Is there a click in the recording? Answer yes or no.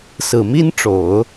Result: no